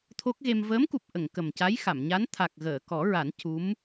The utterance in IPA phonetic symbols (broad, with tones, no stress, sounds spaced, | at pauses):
t̪ʰ o˦˥ k̚ ɣ e˧ m v əː˧˥ m k u˨˩ p̚ ʔ ə˨˩˨ ŋ k ə˨˩ m c a˧˥ j x a˨˩˨ m ɲ a˧˥ n t̪ʰ a˨˩ k̚ ɣ əː˨˩˨ k ɔ˨˩˦ ɹ a˨˩˦ n c u˧˥ m